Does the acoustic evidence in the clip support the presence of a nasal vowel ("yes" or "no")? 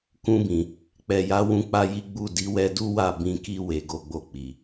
yes